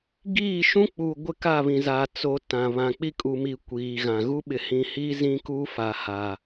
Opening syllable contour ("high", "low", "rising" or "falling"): falling